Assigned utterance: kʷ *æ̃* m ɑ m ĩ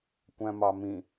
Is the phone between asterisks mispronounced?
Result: no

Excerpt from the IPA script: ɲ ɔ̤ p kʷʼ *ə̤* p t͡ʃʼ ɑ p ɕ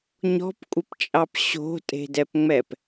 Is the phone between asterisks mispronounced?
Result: yes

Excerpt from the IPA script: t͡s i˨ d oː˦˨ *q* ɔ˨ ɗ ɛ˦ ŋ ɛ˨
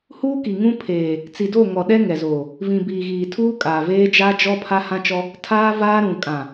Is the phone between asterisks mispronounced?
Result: yes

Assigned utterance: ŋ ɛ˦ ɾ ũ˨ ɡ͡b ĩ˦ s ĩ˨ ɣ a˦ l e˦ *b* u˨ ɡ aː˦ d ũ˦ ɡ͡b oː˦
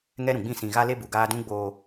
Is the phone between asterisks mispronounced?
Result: no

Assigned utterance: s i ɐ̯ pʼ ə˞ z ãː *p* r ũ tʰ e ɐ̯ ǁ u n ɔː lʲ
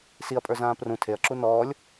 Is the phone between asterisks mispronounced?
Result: no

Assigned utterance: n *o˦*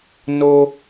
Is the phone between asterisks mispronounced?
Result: no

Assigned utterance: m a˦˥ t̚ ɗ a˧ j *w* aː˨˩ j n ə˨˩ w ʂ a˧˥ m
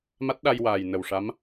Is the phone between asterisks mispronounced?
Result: no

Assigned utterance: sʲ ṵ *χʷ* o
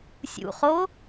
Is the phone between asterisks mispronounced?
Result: yes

